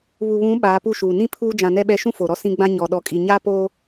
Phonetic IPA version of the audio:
βu˨βũ˨˦ ɓaː˨˦pu˦ʃuː˨ nĩ˦ pʰuː˦d͡ʒã˨nɛ˦ɓɛ˦ ʃũ˦fo˨ɾɔ˦ sĩ˦ɡ͡bã˦ ɲɔ˨ ɗɔ˨kʼi˨ɲaː˦poː˦

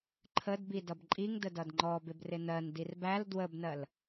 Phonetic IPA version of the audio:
ǃʰəd bidʌbǃʼiŋ dədʌdŋ͡ǃɔbɪb rɪnɜn dirbæl dwəbnɜl

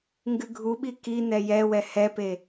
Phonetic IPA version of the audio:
ŋɡɨɡʱuɓi ki n̪ɛjɛwɛ hɛpe

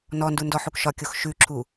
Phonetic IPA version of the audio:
nɔndundɔħuk ʃɒkʲox ʃʉǁʰu

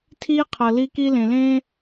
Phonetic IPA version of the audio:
tʰiː˦qʰɤ˨ li˦ ki˦lẽ˨lẽː˦

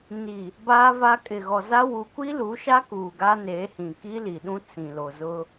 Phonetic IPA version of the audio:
ni˨ | baː˦va˦ kʼɪ˨ɣɔ˨za˦ wu˨kʷi˦lu˨˦ʃa˦ kuː˨ɡa˦neː˨˦hĩ˨ ki˦li˨ɗũ˦ t͡sĩ˨lo˨zʊ˦

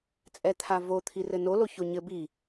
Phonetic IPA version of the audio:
t͡sʼɛt̪ʰavo t̪ʰirɘno loçoɲɘ bi

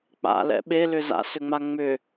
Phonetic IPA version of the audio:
k͡pa̰lɛ̰ ɓelʏ za̰sʏŋ͡ma ŋ͡mʏ

